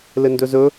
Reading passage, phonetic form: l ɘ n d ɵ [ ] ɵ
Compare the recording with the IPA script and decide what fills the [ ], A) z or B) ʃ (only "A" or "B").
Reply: A